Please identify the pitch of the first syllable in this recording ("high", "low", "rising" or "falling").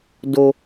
high